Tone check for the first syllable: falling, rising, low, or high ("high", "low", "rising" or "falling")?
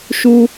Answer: high